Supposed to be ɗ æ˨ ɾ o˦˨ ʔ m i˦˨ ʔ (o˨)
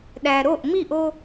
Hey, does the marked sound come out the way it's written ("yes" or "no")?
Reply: no